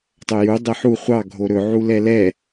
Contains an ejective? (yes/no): no